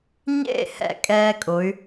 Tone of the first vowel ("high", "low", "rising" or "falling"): falling